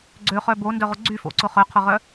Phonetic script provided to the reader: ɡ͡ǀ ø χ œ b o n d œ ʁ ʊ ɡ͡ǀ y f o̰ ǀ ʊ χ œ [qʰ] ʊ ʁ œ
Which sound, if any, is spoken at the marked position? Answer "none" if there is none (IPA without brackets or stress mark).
qʰ